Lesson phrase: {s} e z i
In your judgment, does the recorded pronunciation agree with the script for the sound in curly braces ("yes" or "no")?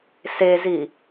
yes